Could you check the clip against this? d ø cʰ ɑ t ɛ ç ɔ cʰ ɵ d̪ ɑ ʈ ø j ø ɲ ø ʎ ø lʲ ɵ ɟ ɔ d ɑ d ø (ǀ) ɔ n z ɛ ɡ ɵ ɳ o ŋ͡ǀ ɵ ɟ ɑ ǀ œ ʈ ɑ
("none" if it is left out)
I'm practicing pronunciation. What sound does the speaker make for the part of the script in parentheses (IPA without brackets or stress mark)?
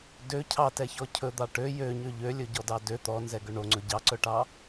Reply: t̪